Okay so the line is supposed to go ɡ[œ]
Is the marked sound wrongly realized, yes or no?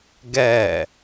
yes